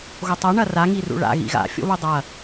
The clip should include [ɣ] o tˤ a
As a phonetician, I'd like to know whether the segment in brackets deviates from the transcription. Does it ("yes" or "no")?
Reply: no